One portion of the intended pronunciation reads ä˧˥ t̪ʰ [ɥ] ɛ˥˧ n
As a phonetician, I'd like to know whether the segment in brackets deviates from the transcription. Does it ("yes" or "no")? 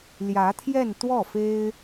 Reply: yes